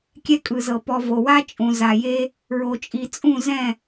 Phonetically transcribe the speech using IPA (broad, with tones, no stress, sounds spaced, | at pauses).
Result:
kʲ ɛ˦ kʼ ɯ˨ z ɤ˨ p ɔ˨ v o˨ w a˦ t͡ʃʼ ũ˨ z a˨ j e˦ | ɹ o˨ t͡ʃʼ i˨ t͡sʼ ũ˦˨ z ɛ̃˦˨